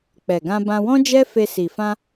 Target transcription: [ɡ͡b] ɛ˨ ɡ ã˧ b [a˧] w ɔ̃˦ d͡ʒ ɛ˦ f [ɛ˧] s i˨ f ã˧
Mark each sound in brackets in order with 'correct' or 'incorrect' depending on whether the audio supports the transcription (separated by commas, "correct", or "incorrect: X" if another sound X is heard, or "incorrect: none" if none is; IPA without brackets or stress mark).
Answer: incorrect: k͡p, incorrect: ã˧, incorrect: e˧